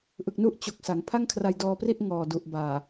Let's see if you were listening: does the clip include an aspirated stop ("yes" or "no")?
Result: yes